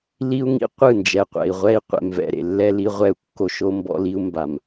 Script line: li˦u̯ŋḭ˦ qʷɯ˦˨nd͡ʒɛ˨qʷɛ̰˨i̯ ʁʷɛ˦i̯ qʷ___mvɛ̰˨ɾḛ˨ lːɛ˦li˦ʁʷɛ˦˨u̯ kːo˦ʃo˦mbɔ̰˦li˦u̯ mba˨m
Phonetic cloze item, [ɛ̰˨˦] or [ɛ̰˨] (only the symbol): ɛ̰˨